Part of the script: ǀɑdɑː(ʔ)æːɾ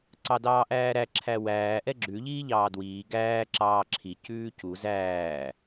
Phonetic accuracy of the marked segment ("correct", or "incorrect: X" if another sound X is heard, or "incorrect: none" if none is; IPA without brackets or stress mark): correct